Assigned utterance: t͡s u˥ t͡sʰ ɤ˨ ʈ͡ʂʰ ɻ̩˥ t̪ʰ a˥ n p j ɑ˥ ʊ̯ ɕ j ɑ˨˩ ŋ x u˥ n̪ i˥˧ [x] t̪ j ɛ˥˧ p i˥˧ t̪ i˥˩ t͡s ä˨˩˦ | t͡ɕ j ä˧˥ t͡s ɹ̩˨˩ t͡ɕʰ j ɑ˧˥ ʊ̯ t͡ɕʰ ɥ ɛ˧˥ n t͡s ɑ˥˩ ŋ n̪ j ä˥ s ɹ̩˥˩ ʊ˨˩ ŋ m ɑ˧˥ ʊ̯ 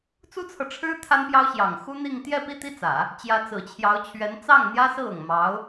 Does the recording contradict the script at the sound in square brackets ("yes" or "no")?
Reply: yes